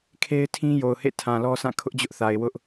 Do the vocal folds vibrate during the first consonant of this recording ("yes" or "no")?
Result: no